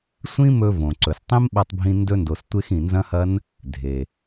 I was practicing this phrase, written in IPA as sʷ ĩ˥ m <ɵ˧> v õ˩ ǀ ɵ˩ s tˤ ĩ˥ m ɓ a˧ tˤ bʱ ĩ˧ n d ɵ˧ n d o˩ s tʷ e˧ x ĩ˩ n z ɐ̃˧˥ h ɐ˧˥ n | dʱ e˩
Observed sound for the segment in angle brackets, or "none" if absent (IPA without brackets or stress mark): ɵ˧